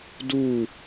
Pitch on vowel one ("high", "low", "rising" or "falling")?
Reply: falling